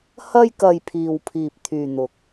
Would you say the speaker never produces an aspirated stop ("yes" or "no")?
no